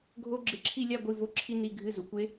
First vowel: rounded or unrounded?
rounded